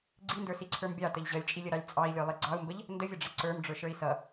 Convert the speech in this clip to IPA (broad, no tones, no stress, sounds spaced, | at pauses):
ɡ͡ǀ i n d ə˞ s i ǀʰ ə˞ m bʲ ɑ t ə ʎ ʑ ʌ lʲ t͡ʃʼ i lʲ ə ɾ ɑ lʲ t͡sʼ ɑ i̯ lʲ ə˞ lˠ i ɡ͡ǀ ɑ u̯ m b ə ʎ | n d ə vʲ ʌ ɖ͡ʐ ɛ ǀ ə˞ m ɖ͡ʐ ə˞ ʃ ə˞ i̯ s ʌ